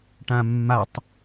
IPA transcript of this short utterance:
ʈãmːatˤ

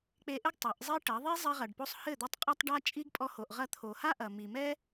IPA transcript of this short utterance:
k͡pe˧ʔɘ˦ɡ tˤɐ˨˦ʔzˤi˦ʈɐ˨˦ ðˤe˦zˤɛ˧ʁɐ˨ɖpo˧sˤ hɘ˦˨d̪ɔ˧tˤ qʼɐ˧tˤ ɖa˦ t͡ʃʼi˦ɡpʼɔ˧ ho˨ʔ ʁɐ˧t̪ʰo˨ha˦ʔɐ˨ mi˨mɛ˦

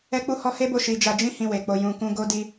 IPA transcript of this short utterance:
ɛ˦k͡pu˦hɔ˦ he˦bo˦˨ ʃi˧d͡ʒa˧d͡ʒĩ˦ hĩ˧we˨k͡po˧ jũ˧kũ˦ ɡo˦di˦

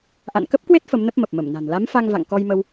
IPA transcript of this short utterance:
ʔa̰˧˨nkə˦˥p̚kwe˦˥t̚ fə˨˦mnə˦˥p̚mə˨˩p̚ mə˧˩mna̤˨˩n la˨˦mfa˧ŋva̰˧˨ŋ kɔ˧jmə˧w

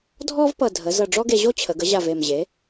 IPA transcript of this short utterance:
dʱɔ˥v pʌ˧˩ dʱə˩˥ zʌ˧˩ɖ͡ʐɔ˥ɡe˧ʑo˥ t͡ɕʰə˩˧ɡə˩˥ʑa˧˩v e˧˩mʑe˩˥

